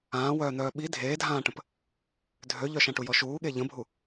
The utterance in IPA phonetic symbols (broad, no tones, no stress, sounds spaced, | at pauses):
ãː w œː n̪ œː ɓ i dʱ eː dʱ ãː ʈ ə̃ p | dʱ ø ʎ œ ʃ ã ʈ u j ɔ ʃ uː ɠ e ʎ ə̃ bʱ u